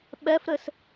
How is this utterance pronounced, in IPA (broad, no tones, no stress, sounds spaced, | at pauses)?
ɓ ɛ f ɾ ɘ s